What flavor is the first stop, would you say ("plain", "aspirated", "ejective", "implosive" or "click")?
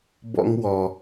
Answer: plain